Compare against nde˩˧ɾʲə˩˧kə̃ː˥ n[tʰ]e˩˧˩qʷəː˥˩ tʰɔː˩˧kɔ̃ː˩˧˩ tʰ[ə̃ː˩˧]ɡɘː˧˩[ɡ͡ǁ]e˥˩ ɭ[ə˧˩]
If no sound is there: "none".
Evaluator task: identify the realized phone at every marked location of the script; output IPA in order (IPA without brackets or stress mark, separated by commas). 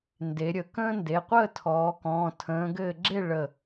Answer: d, ə̃ː˩˧, ɡ͡ǁ, ə˧˩